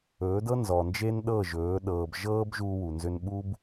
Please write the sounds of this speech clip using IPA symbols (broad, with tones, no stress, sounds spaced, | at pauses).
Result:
ɵː˨˦ d ɤ˦ n z ɔ˨ n d͡ʒ e˦ n ɗ ɤ˦˨ ʒ ɵː˨˦ ɗ ɤː˨ b ʒ ɤː˦ b ʒ uː˦ w u˨ n z ʏ˦ n ɓ u˦ b